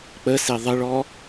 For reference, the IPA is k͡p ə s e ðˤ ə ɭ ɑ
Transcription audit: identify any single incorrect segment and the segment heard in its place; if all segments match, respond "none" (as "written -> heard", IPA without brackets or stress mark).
ɑ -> ɔ